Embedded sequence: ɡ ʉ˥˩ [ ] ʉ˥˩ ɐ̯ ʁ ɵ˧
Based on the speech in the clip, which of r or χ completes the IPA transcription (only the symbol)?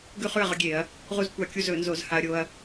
χ